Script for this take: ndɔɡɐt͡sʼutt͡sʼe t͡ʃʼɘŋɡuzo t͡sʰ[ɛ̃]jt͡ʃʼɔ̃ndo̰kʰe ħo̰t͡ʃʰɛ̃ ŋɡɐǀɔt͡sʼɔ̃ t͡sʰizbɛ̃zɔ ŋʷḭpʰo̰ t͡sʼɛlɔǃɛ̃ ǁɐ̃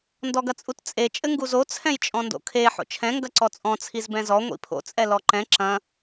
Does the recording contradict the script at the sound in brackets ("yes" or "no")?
no